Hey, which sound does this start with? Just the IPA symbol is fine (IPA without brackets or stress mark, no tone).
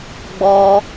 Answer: ɡ͡b